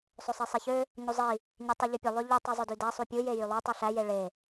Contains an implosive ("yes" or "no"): no